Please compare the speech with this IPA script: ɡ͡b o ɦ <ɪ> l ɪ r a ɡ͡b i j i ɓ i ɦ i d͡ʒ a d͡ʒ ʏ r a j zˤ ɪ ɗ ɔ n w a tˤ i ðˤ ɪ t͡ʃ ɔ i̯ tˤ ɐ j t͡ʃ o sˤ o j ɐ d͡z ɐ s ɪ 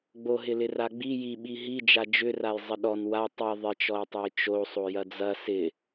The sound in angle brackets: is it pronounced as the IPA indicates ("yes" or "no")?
yes